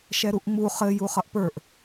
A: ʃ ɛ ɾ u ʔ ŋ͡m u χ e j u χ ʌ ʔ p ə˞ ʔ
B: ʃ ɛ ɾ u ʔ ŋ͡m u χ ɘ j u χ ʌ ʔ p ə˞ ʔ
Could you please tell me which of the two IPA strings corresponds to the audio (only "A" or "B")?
B